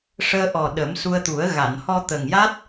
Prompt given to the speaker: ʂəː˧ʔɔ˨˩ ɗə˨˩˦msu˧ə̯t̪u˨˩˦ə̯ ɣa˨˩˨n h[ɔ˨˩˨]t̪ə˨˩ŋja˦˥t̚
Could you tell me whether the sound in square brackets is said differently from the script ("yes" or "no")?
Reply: yes